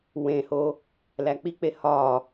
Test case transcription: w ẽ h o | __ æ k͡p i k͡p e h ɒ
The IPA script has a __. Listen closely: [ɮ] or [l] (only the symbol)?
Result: l